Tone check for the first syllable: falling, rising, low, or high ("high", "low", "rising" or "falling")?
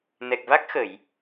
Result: low